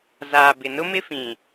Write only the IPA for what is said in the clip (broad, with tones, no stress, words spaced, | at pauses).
zaː˨ bɪ˨nʊ˦mɪ˦fĩ˨